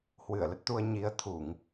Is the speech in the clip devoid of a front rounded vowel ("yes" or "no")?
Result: yes